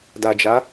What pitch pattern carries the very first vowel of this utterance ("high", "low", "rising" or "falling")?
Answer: low